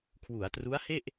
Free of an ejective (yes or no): yes